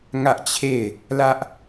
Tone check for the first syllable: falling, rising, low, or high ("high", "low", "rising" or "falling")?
high